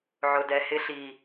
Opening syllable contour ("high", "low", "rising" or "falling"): low